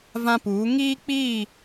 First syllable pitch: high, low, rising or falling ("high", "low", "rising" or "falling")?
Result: high